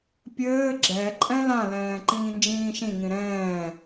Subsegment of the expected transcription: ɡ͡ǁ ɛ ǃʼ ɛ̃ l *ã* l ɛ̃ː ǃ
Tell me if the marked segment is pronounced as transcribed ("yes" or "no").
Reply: yes